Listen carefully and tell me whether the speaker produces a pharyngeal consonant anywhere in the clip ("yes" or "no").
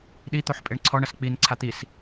yes